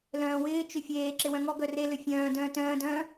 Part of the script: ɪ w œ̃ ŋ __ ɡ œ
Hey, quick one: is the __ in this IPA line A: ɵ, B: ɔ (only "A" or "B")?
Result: B